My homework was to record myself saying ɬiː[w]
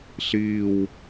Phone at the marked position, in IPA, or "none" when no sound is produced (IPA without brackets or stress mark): w